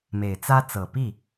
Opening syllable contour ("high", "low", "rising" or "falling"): low